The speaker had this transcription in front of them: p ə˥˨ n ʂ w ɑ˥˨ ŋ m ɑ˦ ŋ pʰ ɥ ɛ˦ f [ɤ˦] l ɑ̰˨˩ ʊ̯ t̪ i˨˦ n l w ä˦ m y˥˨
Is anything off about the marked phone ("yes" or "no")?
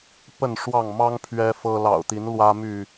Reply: no